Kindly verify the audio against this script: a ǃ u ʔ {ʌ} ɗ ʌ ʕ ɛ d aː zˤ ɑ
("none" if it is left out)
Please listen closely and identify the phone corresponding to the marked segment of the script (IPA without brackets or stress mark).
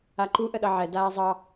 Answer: ə